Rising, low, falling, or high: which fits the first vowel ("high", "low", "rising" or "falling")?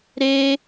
high